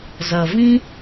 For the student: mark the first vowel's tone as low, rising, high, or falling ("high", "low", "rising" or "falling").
low